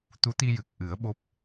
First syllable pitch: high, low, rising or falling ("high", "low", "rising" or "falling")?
rising